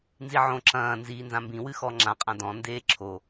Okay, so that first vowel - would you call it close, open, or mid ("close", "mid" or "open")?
close